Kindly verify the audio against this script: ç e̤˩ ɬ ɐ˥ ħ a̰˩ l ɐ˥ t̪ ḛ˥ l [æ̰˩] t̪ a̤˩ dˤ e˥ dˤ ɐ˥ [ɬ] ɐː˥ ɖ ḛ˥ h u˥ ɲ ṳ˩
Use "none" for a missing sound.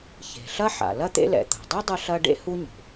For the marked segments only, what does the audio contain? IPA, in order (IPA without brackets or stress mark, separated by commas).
ɛ̰˩, ɬ